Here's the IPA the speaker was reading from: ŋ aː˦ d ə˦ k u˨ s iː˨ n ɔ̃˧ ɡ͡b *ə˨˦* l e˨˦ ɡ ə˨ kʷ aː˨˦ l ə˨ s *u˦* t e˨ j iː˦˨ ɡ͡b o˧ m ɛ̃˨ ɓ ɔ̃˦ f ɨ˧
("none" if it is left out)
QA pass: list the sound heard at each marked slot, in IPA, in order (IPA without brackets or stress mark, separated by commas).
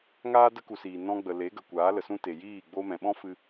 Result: ə˨, ũ˦